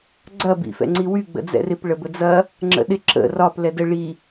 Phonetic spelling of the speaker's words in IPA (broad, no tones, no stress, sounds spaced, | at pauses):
ɡ͡ǀ ɐ b ḭ f ɛ̰ ŋ͡ǀ i w y ɡ͡b ə̰ d͡z ɛ̰ r ɪ p ɭ ə b ə d͡z ɐ | ŋ͡ǁ ə̰ ɗ ɪ ǁ ə̰ r ɒ p l ɛ d ə ɭ i